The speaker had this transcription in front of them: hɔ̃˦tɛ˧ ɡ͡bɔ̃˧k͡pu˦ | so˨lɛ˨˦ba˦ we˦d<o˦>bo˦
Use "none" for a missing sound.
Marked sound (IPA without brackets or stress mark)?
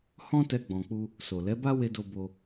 o˦